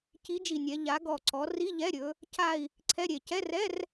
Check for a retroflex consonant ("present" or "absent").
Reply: absent